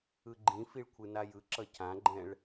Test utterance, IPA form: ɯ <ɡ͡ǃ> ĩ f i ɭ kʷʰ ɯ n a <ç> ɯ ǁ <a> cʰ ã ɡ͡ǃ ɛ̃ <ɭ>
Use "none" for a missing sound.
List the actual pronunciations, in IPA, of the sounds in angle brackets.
ɡ͡ǃ, j, ʌ, ɭ

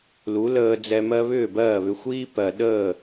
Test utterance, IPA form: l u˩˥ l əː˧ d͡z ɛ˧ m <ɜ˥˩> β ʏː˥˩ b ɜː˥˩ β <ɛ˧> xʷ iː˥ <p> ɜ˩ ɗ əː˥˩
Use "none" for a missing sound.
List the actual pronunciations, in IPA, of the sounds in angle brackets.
ɜ˥, ʏ˧, p

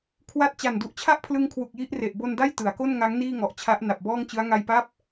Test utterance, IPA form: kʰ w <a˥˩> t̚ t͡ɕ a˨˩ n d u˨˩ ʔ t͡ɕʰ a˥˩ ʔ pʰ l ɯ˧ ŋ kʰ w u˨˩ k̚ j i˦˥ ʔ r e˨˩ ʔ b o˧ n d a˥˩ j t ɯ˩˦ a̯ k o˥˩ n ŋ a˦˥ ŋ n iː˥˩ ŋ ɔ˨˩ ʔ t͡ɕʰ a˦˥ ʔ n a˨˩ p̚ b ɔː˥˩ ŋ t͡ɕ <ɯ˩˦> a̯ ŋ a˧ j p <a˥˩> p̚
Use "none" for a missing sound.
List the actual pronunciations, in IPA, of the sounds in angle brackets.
a˥˩, ɯ˦˥, a˥˩

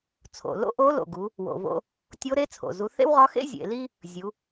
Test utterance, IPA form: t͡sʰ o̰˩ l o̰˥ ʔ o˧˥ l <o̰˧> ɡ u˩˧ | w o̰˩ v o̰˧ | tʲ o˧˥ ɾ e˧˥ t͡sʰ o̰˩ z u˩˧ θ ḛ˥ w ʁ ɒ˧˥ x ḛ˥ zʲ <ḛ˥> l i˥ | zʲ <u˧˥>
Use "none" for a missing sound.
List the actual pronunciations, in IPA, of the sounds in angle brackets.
o̰˩, ḛ˩˧, u˩˧

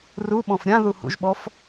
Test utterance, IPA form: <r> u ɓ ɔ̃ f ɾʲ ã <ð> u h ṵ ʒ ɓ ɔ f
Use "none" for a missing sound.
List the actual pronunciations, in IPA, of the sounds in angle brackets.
r, ð

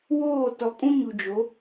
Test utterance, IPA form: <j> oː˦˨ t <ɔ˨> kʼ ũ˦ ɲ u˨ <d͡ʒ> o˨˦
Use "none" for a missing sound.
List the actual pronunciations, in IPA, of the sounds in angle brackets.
w, ɔ˨, d͡ʒ

